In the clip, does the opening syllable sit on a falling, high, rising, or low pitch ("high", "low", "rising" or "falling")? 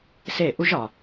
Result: falling